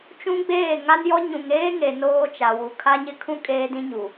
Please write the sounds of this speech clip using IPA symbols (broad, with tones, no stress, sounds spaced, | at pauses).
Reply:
t͡ʃ ũ˦ ɡ͡b eː˦˨ ŋ a˦ n j ɔ˦ ɲ ũ˨ ŋ eː˦ ŋ e˨ n oː˦ t͡ʃ a˨ w u˨ kʰ a˦ ɲ ɪ˦ kʰ ũ˦ kʼ eː˦ d ĩ˦ ɲ u˨